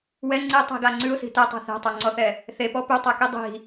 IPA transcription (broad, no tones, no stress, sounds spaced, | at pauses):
w ɛ ŋ͡ǀ i tˤ i̤ ɡ a ŋ͡ǀ ʉ ʊ̯ s i̤ t ɛ tˤ ɛ̤ θ ɛ̤ tˤ a ŋ͡ǀ ɔ θ ɛ | θ e p ɔ p ʉ tˤ ɛ k i dˤ i̤